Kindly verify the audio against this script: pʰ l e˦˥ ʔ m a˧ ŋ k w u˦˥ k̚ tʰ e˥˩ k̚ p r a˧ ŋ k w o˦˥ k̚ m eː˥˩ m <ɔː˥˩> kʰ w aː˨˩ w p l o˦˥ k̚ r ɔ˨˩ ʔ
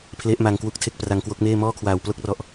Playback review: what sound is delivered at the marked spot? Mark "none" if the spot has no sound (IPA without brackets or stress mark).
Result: ɔː˥˩